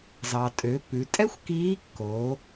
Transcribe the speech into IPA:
z ɑ˩ tʼ ø˩˧ p ʉ˩˧ tʼ ɛ˥ xʷ k iː˧˥ kː oː˩˧

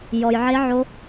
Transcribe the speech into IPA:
j ɔ˨ j ʕ e˦˥ ʕ o˦˥

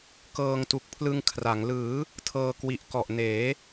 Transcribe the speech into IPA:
k ɤː˧ ŋ t u˨˩ k̚ pʰ l ɯ˧ ŋ kʰ r a˩˦ ŋ l ɯː˩˦ | tʰ ɤː˧ k w i˨˩ ʔ k ɔ˨˩ ʔ n eː˩˦

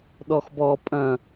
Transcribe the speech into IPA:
ɗ ɔ x b ɔ pʼ ɐ̃

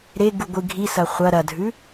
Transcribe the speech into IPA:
ɾ e ɡ u ɡʷ ɨ ɡʱ i s ɐ χʷ ɐ ɾ ɐ dʱ ʉ

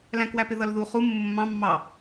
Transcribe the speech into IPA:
l æ̃ k w æ p ɪ ð ʌ l ð u χ u mː ʊ mː ɑ̃ mː ɑ

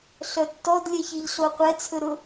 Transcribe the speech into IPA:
ɬ œ tː ɔ d lʲ ɛ ç i ʎ ɬ o qʷ ɛ t͡sʰ ɵ ɾ ʊ

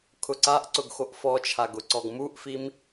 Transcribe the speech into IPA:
kʰ ʊ ǀ a ʔ ǀ ʊ ɡ x o ʔ f ɔ t͡ʃʰ a ɡ ʊ ǀ ɔ ɡ m u ʔ f i m

